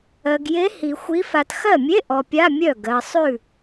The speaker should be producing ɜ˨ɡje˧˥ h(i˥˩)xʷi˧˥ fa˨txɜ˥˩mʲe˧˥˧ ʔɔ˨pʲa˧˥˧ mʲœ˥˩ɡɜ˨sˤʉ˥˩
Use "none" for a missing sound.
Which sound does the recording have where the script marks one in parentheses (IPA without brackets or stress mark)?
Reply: i˨